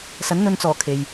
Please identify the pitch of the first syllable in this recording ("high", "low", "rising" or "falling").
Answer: rising